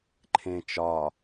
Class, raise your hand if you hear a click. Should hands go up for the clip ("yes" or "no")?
yes